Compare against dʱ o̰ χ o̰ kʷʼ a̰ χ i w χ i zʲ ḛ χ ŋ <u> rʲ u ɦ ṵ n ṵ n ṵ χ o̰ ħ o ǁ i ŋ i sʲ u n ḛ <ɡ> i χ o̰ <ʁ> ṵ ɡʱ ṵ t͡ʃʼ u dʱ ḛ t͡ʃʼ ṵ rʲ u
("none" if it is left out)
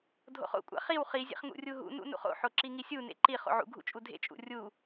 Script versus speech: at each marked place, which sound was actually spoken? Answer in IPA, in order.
ṵ, ǃ, ʕ

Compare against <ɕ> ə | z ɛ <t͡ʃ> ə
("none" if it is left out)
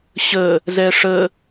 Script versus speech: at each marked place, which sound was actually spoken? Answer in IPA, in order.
ɕ, ʂ

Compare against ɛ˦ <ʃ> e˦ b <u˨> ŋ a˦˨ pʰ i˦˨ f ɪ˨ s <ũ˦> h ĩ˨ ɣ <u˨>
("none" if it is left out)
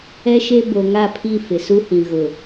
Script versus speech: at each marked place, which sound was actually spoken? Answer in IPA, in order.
ʃ, o˨, u˦, ʊ˨

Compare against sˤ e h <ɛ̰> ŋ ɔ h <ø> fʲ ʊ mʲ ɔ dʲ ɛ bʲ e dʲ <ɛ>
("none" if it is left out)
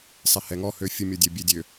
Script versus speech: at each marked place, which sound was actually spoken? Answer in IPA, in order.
ɛ, ø, ø

